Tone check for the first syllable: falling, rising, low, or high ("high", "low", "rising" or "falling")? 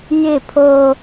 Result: falling